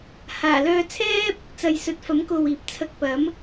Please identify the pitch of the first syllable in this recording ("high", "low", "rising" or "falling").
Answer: low